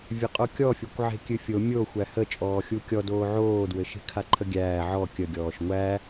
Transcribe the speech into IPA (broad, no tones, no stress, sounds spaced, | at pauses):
vʲ ɘ qʼ o kʲ ɔ fʲ o kʷ ʕ e̤ kʲ ɨ fʲ o mʲ o xʷ æ h ə t͡ʃʼ ɔː xʲ u kʲ ɔ d oː ʕ oː d w ɘ ʃ e̤ kʰ a ǃʰ ə ɡʲ æː ʕ ɔ kʲ ə ɡʲ ɔː ʃ ŋʷ æ